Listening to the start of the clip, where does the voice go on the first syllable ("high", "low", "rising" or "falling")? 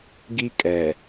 high